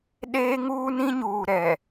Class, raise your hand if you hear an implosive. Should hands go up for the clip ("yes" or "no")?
yes